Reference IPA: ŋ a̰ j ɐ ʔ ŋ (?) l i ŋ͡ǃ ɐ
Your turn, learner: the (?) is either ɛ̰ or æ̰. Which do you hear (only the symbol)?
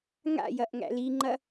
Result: æ̰